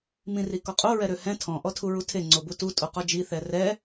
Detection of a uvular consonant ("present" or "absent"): present